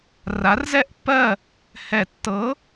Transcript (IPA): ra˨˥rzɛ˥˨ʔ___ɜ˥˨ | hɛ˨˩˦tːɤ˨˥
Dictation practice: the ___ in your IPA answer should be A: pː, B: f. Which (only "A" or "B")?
A